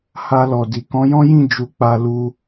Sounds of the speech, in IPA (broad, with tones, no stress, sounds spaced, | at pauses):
h a˧ l ɔ˨ d i˨ k ɔ̃˨˦ j ɔ̃˦ j ĩ˦˨ d͡ʒ u˧ k͡p a˧ l u˧